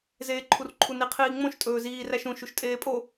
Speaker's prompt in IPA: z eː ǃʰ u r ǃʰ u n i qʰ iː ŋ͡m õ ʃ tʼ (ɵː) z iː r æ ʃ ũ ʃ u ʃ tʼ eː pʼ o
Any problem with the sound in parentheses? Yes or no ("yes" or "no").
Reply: no